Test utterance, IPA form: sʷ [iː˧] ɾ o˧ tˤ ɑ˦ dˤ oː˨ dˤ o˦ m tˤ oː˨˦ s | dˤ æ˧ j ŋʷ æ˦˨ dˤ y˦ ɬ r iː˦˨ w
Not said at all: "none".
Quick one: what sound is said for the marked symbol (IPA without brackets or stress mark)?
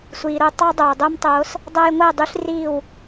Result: iː˨